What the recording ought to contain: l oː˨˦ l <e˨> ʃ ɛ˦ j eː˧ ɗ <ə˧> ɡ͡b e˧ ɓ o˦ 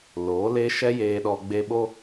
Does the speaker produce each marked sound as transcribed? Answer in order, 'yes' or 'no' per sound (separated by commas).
no, no